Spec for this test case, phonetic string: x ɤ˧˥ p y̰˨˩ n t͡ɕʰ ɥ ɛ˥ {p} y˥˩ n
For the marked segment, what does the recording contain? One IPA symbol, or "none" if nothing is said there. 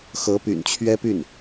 p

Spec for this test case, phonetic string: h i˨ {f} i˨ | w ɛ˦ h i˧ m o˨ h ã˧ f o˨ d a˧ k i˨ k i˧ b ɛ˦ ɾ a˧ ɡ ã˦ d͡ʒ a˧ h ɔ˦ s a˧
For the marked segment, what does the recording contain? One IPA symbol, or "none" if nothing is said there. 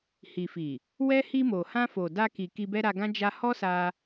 f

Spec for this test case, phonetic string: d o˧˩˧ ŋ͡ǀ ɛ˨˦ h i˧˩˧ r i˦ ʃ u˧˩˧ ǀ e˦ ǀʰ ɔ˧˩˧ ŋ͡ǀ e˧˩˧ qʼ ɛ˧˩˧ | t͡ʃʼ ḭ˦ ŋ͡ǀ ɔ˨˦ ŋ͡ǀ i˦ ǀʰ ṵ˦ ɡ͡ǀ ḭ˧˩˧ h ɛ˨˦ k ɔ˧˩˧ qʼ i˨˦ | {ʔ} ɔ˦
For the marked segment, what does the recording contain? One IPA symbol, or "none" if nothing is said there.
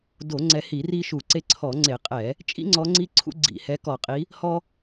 h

